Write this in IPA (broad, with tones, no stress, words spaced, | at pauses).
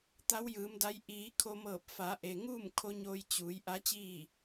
t̪a˧˥wjɯː˩˧mda˧˥j ʔiː˩˧ kʰo˧mɤː˧˩p̚ fa˩˧ʔe˩ŋuː˥˨m kʰo˧˥ɲoː˧j t͡ɕuː˩˧j ʔa˧˥t͡ɕiː˥˨